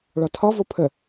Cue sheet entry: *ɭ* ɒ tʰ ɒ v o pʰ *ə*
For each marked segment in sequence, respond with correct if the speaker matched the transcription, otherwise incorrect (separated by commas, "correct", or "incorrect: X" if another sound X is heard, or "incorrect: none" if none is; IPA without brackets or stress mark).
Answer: correct, correct